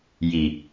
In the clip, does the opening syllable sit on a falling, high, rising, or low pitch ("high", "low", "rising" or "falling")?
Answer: low